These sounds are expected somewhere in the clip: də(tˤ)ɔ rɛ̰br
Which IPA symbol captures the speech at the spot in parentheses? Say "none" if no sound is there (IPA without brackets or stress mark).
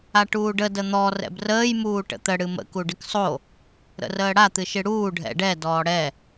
n̪